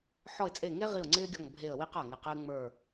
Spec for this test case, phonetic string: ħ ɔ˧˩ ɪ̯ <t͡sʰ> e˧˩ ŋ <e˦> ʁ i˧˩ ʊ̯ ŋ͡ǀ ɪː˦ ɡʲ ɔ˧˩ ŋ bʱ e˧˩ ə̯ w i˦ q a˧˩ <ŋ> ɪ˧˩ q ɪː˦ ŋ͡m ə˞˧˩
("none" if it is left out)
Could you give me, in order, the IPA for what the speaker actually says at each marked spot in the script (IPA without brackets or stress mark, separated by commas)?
t͡sʼ, e˦, ŋ